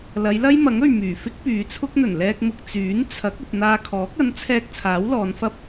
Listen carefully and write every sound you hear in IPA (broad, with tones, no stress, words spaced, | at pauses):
lɐ˨˧jlɐ˥jmɐ˨˥ŋ ɵ˨ɥmyː˨˩fɪ˥k̚ pyː˨˧t͡sʰʊ˥k̚n̪ɵ˨˩n lɛː˧k̚mʊ˨k̚ t͡syː˨˥n t͡sʰɐ˨˥k̚ ɵ˨t̚ n̪aː˧kʰɔː˨˥k̚ ɐ˨˥nt͡sʰɛː˧k̚ t͡sʰaː˨˥wlɔː˨˧nfɐ˥p̚